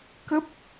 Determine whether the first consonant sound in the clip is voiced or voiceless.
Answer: voiceless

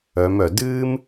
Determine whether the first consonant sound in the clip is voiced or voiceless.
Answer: voiced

